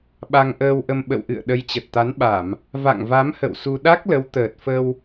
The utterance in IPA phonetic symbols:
ɓa˧ŋʔəː˧wʔə˧m ɓə̰˧˨wʔɨ̰˧˨ə̯ ɗə˨˦jt͡ɕə˨˩t̚t̪a˨˦nɓa˧˩˨m | va̰˧˨ŋva˨˦mhə̰˧˨w su˧ ɗa˦˥k̚lə˨˦w t̪əː˨˩t̚fə˧w

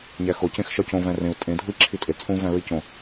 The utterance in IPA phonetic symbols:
ɲæxo cẽxʃɒcõ væ̃rẽu̯ tʼẽ dʱui̯ǁʰitʼe t͡sʼũ væ̃ɹicõ

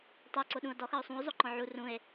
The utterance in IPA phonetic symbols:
tˤɤ ǀoɗũo̯dɔx ɤo̯sˤũo̯ zˤoǃɔ̃ʕu rũe̯

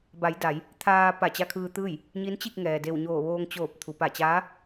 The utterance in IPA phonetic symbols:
ba˩˧j da˩˧j | t̪ʰaː˧ pa˧˩t͡ɕa˧kʰɯː˧t̪ɯː˥˨j | ɲi˧˥nt͡ɕi˥˨k̚ŋɛː˩ de˧˩wɲoː˧˩ʋoː˧ŋ t͡ɕoː˧˩p̚t̪ʰu˩ pa˧˩t͡ɕaː˧˥

